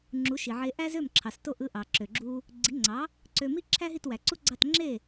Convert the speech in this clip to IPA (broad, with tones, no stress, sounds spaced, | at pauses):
ŋ͡ǁ u˩˥ ʃ i˩ ʕ e˧ ʔ æ˥ z ø˥˩ m ǁʰ ɑ˩ s t o˥˩ ʔ ɯ˥˩ ʔ ɑ˩ ǁ ø˩ ɡ͡ǁ u˧ | ɡ͡ǀ i˩˥ ŋ͡ǀ ɑ˩˥ | ǀ ø˧ m i˥ ǁʰ æ˥ ɦ i˥˩ t w æ˩ ǀ u˥ ɡ͡ǀ ɑ˥˩ t ŋ͡ǁ e˥˩